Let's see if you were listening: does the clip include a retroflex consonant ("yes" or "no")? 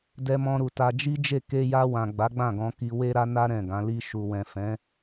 no